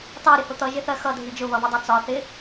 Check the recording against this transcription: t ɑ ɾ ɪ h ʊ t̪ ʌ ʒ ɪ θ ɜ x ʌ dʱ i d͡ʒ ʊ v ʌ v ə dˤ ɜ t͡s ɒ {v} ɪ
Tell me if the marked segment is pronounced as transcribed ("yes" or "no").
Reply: no